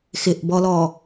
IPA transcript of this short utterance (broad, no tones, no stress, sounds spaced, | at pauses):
x ɪ ʔ b ɔ l ɔ